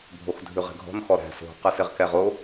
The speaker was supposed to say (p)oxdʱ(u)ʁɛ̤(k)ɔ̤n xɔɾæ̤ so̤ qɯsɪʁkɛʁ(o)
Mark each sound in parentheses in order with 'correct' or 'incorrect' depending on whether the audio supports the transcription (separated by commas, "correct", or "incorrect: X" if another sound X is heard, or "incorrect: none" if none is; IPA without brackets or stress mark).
incorrect: bʱ, incorrect: ʉ, incorrect: ɡʱ, correct